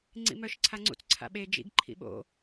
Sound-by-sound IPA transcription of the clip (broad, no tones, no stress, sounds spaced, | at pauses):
ŋ͡ǀ ḭ m œ ʃ ǀʰ a ŋ͡ǀ ṵ t͡s ǀʰ a̰ ɓ e d͡ʒ ḭ ɡ ǃʰ ḭ ɓ o̰